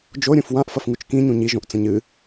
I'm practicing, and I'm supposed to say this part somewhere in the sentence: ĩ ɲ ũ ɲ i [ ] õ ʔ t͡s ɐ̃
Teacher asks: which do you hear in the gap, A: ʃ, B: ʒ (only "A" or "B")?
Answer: B